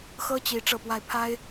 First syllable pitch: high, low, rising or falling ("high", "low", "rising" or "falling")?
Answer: high